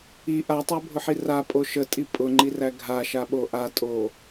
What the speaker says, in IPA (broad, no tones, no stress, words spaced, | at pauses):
i ʔatˤæbʱʊħi rapʼo ʃətʼi pʼʊŋ͡ǃiræ ɡʱaʃaɓo ʔatʼo